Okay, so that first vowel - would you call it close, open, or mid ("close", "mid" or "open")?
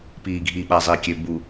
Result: close